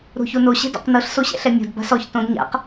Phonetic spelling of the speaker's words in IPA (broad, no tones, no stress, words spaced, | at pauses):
ɾo̤çono ɕɛ̤dɔ̰qnɤɬ soɕɛ̰ɬɛmʲo̤d ba̤sɔç tõdɲa̰q